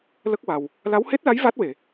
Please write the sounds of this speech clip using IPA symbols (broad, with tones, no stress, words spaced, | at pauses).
lə˦˥k̚wa˨˩w | la˧˥whe˦˥t̚la˧˥j va˦˥t̚we˨˩˨